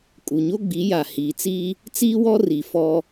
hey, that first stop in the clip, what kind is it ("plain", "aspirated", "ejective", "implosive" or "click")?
ejective